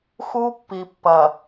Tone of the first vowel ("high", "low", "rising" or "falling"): high